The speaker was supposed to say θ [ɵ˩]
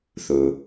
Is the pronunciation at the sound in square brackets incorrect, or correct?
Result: correct